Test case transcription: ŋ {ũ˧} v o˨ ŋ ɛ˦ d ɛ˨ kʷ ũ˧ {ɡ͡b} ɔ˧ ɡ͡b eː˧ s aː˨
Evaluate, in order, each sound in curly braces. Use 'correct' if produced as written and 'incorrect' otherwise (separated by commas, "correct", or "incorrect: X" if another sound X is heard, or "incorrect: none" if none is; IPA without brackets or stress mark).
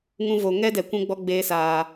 correct, correct